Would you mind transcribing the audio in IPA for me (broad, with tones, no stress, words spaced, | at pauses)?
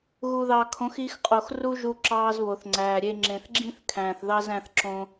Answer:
ɣu˨ðɑː˨kʰõ˨˦x i˧xqʼo˨x ru˦ʒu˧ ǁɑː˧zβo˨θŋ͡ǀæː˨ ɾʲe˧ ŋ͡ǁẽ˨θɡ͡ǁĩ˦θkʰæ̃ː˨θ ðɑ˦z æ̃˦θǁõ˦